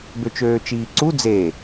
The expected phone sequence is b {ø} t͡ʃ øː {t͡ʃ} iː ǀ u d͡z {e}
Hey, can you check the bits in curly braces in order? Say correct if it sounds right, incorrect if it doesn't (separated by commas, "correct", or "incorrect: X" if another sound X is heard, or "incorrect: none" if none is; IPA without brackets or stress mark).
correct, correct, correct